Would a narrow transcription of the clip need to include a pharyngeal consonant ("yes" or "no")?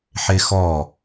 yes